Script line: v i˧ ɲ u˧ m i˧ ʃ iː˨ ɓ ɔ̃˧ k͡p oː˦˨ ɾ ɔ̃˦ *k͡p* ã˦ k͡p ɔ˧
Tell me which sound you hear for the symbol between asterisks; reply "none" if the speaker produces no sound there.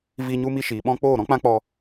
k͡p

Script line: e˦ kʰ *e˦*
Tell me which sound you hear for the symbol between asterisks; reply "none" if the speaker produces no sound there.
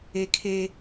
e˦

